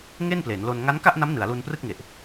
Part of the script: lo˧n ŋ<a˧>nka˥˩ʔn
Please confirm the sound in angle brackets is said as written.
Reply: no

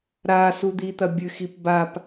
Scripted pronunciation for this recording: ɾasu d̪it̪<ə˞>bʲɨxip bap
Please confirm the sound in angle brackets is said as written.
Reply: no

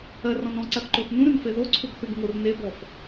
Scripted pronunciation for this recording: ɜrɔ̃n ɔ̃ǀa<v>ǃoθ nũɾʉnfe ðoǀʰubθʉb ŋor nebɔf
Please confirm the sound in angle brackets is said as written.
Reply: no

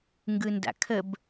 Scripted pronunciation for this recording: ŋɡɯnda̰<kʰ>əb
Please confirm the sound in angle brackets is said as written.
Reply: yes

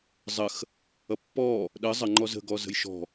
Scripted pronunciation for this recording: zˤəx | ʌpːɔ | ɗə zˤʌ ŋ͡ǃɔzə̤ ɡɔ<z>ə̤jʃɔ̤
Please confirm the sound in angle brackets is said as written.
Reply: yes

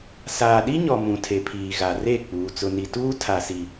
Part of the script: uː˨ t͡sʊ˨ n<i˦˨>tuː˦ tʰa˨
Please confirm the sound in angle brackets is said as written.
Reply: no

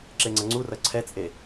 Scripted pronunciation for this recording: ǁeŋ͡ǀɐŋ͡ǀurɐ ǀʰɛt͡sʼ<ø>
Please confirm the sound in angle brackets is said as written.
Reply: no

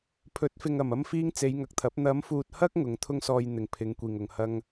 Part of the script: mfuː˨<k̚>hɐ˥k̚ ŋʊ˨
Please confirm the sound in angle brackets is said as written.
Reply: no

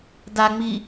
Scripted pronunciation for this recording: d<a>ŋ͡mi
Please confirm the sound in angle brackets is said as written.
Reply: yes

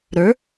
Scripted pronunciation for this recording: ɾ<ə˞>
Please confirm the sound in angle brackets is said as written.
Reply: yes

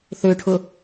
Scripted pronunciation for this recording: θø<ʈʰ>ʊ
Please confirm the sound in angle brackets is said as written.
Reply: yes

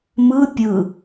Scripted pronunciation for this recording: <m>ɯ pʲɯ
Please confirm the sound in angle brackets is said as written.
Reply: yes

